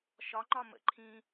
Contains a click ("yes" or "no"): yes